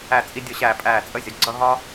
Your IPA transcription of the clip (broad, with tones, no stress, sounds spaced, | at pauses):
æ˦˨ t͡sʼ i˦ dʲ ʊ˦˨ ɕ æː˦˨ pʼ æː˦˨ t͡sʼ ə˦ zʲ ʌ˩˧ ɡ͡ǀ ʌ˦ ɦ ɒ˦